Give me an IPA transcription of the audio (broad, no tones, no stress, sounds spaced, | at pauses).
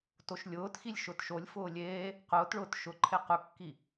t o ʃ lʲ ʊː t x i lʲ ʃ ʊ t ʃ o lʲ f ʊː lʲ eː | q ʊː t ɭ ʊː t ʃ ʊ ǃʰ e q ʊ kː i